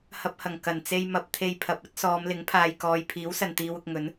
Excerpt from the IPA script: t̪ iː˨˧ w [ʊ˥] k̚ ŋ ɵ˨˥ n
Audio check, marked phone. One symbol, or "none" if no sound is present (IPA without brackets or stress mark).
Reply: ʊ˨